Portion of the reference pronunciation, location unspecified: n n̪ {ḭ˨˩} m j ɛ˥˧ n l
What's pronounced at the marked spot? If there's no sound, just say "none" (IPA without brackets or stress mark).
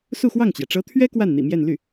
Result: ḭ˨˩